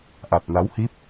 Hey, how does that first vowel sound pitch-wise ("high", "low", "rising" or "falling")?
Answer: low